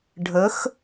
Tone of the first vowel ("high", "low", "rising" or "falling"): rising